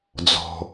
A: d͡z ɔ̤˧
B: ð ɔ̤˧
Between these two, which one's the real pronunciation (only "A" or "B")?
A